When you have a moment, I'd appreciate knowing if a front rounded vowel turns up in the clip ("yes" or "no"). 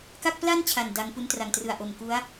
no